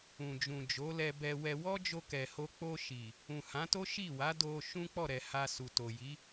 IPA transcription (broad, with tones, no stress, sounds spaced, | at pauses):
ũ˨ d͡ʒ ũ˨ d͡ʒ o˨˦ l ɛ˧ b ɛ˧ w ɛ˧ w ɔ˦ d͡ʒ o˧ k ɛ˨ h o˧ k͡p o˧ ʃ i˨ | ũ˨ h ã˨˦ t o˦ ʃ i˦˨ w a˨˦ d o˧ ʃ ũ˦ k͡p ɔ˦˨ ɾ ɛ˨ h a˧ s u˨ t o˨ j i˨˦